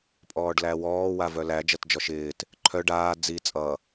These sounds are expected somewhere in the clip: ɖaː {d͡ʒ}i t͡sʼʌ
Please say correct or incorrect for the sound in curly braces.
incorrect